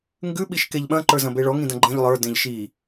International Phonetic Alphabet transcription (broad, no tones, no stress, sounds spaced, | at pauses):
ŋ ɡ ʉ ɓ i ʃ k e ʎ ɓ ɐ̃ ǃ ə˞ z ɐ̃ b e ɭ ɔ ŋ ĩ d ɐ̃ ɡ͡ǃ ẽ ʎ lˠ ə˞ d ẽ ʎ ʃ i